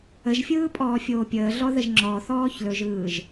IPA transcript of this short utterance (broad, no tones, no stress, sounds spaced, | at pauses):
ə ʒ fʲ ɯː pʼ ɔː fʲ oː pʲ əː ɮ ɔ ð ə ʒ ŋ͡ǁ ɔ θ ɔː ç l ɵ ʒ ɯː ʒ